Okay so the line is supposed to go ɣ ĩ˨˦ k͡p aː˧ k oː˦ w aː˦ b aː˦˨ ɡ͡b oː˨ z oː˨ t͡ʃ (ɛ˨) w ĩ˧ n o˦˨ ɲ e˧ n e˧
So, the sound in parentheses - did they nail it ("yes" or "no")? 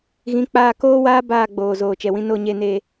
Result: yes